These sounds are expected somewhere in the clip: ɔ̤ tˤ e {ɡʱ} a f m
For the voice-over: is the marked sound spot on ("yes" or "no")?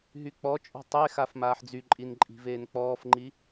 no